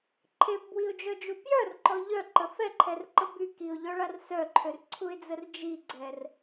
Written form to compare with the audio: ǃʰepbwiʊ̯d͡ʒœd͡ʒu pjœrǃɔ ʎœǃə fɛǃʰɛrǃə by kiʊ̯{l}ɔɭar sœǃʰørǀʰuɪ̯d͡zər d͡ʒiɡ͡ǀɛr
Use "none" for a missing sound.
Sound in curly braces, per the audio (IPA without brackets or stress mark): ʎ